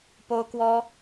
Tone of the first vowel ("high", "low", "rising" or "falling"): high